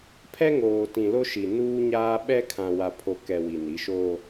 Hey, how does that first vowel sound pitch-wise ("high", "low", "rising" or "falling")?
high